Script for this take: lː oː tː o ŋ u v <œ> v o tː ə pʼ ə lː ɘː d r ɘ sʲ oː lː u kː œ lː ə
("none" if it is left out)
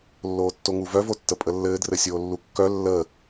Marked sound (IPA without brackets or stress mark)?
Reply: œ